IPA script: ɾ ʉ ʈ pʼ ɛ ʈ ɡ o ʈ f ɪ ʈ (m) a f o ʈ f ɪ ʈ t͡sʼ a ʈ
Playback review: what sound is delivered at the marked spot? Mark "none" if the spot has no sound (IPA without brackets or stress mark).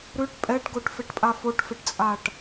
pʼ